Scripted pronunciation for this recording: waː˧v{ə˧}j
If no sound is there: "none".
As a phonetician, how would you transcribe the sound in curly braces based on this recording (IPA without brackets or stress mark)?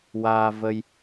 ə˧